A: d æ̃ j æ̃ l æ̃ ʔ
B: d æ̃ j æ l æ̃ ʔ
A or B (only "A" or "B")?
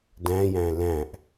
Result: A